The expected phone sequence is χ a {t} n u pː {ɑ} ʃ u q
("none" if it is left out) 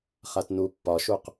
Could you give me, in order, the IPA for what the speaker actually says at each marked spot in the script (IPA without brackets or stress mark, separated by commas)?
t, ɒ